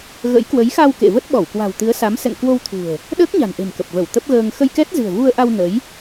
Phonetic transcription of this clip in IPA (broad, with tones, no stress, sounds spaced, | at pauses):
ɣ ə̰˧˥ j k w ə˨˦ j x a˧ w k ḛ˧˨ v ə˦˥ t̚ ɓ ɔ˧˩ w k w a̤˨˩ w t̪ ɨ˨˦ ə̯ s a˨˦ m s ɛ̰˧˨ ŋ k w o˧ w t̪ʰ ṳ˨˩ ə̯ | ɗ əː˦˥ k̚ ɲ a̤˨˩ n ʔ e̤˨˩ m k ə˨˩ p̚ v ə˧˩ w t̪ ə˦˥ p̚ ɣ əː˧ ŋ x ə˧ j k ɛ˦˥ t̚ z ɨ̤˨˩ ə̯ v u˧ ə̯ ʔ a˧ w n ə˨˦ j